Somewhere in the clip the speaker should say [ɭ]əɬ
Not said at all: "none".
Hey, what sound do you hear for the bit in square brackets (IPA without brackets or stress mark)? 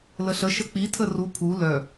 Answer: l